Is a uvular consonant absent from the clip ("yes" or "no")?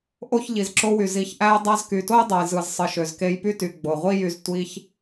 no